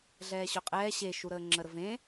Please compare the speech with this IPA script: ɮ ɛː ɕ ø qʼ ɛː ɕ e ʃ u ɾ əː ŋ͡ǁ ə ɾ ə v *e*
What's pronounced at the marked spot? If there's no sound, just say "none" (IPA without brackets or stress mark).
ẽ